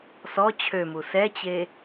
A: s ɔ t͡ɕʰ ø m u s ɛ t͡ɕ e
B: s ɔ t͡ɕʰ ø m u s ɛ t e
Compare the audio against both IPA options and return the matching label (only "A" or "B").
A